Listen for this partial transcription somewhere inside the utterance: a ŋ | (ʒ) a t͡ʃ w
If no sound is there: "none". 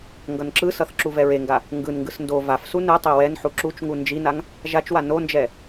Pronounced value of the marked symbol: ʒ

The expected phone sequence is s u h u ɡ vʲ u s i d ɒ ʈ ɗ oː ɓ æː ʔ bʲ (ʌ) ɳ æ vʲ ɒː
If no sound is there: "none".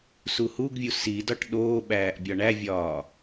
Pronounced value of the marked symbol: ɒ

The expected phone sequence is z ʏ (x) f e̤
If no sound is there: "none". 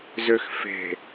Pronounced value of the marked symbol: x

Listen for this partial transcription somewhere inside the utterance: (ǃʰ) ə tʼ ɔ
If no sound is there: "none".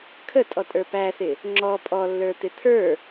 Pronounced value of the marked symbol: kʰ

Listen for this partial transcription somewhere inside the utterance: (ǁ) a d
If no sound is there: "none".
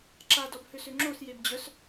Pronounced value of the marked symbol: ǁ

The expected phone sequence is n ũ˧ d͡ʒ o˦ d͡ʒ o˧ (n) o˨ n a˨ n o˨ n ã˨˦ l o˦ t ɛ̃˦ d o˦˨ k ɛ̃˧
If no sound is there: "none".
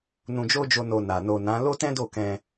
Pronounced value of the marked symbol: n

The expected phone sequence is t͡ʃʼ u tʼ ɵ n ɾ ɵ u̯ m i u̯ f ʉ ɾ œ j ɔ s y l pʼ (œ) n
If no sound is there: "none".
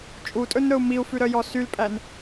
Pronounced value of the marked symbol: æ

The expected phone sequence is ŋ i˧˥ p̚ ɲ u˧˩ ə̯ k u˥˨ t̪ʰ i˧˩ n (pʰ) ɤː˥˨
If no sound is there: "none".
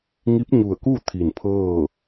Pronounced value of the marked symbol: pʰ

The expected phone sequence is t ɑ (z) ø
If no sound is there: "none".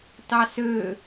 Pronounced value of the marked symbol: s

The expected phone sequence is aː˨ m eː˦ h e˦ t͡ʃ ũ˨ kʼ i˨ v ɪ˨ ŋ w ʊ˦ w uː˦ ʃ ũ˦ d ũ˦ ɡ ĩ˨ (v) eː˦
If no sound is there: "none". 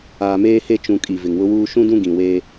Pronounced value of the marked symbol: w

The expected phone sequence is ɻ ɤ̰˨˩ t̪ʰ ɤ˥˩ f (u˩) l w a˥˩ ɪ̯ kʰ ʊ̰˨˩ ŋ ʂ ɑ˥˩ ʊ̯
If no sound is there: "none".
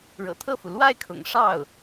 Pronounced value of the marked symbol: u˩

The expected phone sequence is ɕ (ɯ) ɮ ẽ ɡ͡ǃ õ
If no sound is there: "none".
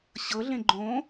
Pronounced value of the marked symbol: ɤ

